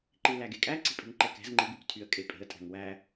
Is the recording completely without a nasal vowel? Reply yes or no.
yes